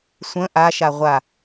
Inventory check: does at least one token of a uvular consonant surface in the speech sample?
yes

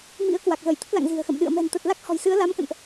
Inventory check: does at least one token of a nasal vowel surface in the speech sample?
no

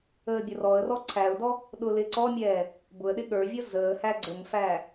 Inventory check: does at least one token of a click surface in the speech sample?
yes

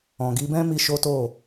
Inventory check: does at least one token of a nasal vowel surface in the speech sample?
yes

